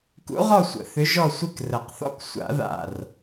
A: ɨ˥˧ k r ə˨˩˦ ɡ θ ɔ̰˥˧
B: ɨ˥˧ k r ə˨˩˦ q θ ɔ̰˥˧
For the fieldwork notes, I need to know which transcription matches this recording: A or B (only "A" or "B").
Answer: B